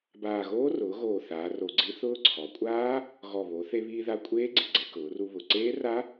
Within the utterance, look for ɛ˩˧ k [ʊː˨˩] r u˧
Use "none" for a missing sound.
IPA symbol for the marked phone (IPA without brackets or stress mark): ʊː˩˧